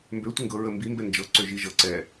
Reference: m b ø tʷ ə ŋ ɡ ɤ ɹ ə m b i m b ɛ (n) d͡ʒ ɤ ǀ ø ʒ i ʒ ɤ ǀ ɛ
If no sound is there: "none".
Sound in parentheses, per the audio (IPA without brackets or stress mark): n